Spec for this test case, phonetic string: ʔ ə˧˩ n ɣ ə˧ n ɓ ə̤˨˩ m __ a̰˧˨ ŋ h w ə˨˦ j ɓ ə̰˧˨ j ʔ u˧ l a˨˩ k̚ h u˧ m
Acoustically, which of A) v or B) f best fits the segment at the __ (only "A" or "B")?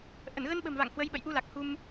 A